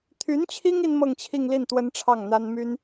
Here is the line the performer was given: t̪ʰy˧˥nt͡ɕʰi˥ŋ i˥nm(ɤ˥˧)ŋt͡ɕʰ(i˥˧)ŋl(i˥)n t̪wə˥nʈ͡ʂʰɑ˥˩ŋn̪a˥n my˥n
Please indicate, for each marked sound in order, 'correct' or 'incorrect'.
correct, correct, incorrect: i˥˩

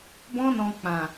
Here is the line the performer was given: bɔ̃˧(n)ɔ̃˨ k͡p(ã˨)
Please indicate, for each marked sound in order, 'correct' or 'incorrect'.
correct, correct

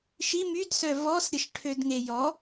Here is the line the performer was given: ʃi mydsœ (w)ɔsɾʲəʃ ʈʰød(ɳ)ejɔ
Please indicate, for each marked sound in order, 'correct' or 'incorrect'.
incorrect: v, incorrect: ŋ

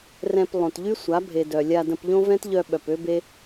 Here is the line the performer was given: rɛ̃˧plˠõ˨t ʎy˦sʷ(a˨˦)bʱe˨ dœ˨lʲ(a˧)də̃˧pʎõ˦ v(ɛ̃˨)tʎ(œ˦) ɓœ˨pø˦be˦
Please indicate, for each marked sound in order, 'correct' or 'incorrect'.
correct, correct, incorrect: ɛ̃˦, incorrect: œ˧

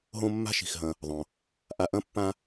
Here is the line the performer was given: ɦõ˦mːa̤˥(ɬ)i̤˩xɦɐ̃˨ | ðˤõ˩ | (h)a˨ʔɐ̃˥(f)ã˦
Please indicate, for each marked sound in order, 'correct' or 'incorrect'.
incorrect: ʃ, incorrect: ʔ, incorrect: pː

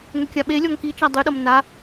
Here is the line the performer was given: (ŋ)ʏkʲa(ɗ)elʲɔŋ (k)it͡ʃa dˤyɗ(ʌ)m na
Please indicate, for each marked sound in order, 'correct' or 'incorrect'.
correct, incorrect: ɓ, correct, correct

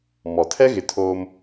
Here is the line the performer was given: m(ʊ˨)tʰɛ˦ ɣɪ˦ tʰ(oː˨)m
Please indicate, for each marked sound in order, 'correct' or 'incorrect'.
incorrect: ɔ˨, incorrect: oː˦

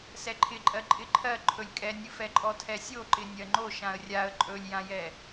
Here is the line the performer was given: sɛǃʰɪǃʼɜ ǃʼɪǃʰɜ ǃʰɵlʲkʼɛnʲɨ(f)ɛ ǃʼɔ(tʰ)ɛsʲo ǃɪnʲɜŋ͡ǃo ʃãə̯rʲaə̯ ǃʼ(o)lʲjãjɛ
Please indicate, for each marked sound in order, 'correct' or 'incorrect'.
correct, correct, incorrect: ɵ

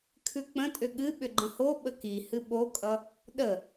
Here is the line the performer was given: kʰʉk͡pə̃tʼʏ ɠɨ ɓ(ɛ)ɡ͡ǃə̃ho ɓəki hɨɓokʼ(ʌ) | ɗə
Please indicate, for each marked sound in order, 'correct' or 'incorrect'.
incorrect: ʏ, correct

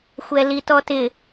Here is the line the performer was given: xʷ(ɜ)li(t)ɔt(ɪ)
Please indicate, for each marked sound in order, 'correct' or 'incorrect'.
incorrect: ɛ, correct, correct

